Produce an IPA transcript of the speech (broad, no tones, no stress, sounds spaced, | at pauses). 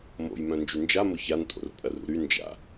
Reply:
m o̰ j m œ̃ n d͡ʒ y n d͡ʒ a m ʊ ç a n tʼ o̰ r pʼ ɐ r ṵ ɾ y n d͡ʒ a̰